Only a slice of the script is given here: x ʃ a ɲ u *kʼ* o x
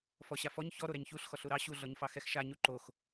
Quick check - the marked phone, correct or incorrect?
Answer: incorrect